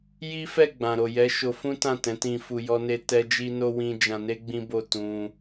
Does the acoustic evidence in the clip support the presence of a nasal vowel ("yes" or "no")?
yes